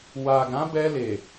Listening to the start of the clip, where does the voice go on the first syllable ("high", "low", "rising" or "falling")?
low